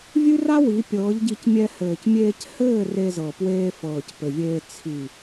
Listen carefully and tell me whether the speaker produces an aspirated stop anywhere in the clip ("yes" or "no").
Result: yes